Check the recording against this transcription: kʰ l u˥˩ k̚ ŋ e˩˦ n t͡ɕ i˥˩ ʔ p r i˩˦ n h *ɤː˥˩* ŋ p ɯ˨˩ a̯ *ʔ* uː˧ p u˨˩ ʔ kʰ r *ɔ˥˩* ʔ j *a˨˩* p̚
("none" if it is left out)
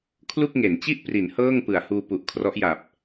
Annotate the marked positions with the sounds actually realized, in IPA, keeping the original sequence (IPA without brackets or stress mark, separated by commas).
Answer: ɤː˥˩, h, ɔ˦˥, a˨˩